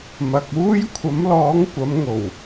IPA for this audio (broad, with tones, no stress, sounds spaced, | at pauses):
m ɐ˨ k̚ uː˥ j kʷʰ ɐ˨˥ m l ɔː˨˥ ŋ kʷ ɐ˨˥ m ŋ o˨˩ w